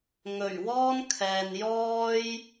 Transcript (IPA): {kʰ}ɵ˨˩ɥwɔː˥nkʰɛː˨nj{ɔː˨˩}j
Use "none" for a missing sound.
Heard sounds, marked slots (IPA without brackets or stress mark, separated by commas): ŋ, ɔː˥